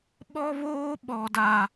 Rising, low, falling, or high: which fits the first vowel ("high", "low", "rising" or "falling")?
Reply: high